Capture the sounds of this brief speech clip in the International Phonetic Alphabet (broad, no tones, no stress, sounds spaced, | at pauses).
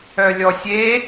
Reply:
œ lʲ ɔ sʲ e